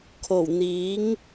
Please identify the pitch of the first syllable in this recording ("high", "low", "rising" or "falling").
low